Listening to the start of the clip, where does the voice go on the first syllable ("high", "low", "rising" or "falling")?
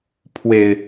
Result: low